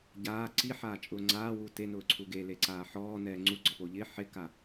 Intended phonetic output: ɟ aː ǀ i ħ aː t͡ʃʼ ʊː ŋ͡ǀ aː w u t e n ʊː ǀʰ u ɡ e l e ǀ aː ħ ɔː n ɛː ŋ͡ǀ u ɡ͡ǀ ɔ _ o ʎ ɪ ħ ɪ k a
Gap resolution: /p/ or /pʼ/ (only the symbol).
p